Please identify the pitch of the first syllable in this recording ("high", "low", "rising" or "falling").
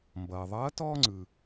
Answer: low